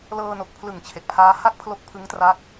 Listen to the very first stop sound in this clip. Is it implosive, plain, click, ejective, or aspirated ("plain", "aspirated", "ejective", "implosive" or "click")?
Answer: plain